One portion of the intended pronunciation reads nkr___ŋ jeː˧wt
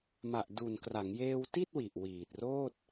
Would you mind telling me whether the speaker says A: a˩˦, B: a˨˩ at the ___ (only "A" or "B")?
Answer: A